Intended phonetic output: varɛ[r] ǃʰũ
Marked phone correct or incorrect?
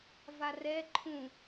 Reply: incorrect